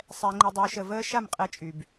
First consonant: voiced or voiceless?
voiceless